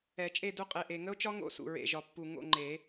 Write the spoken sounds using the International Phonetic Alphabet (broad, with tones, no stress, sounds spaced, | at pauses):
ɛ˨˩˦ t͡ʃʼ e˦˨ d u˦˨ qʼ e˨˩ ʔ e˨˩ ŋ ə˦˥ o̯ t͡ʃ ɒ˦˥ ŋ o̰˦˥ s ṵ˨˩ ɹ ḛ˨˩ ʒ ɒ˨˩ pː u˨˩ ŋ o̰˦˨ ŋ͡ǃ e˨˩˦